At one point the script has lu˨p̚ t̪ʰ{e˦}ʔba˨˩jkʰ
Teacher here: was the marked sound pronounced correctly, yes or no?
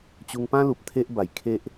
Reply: yes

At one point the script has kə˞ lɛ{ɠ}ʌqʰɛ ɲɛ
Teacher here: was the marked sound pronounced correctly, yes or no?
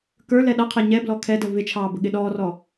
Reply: no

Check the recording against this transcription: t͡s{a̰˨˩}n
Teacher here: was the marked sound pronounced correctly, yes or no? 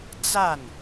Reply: no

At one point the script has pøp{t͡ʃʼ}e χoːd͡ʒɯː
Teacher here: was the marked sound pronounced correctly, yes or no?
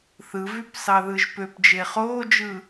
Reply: no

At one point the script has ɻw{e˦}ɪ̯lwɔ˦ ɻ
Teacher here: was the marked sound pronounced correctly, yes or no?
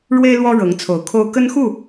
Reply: yes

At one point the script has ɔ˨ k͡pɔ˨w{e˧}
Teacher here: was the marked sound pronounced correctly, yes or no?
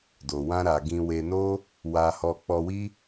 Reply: no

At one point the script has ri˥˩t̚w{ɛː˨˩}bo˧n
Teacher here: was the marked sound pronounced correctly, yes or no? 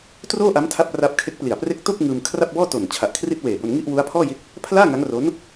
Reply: no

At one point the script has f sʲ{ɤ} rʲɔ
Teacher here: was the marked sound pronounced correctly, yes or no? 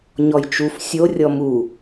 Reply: no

